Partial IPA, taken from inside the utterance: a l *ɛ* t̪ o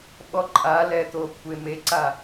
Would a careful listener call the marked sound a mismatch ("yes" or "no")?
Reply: no